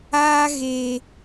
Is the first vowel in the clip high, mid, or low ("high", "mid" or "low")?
low